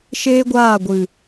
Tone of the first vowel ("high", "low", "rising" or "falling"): high